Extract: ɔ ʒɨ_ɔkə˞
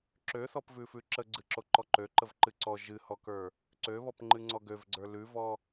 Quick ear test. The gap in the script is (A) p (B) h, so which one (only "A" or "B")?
B